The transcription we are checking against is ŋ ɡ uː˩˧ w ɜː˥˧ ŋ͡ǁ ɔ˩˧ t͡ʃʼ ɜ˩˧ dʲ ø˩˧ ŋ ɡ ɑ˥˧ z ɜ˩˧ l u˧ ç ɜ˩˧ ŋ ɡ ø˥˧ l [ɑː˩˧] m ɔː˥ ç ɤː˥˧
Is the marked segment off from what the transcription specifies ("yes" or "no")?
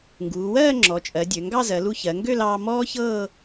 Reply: yes